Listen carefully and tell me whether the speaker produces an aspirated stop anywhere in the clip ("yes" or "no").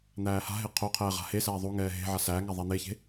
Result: yes